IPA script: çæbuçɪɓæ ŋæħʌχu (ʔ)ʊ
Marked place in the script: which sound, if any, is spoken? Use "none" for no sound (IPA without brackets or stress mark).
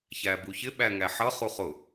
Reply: χ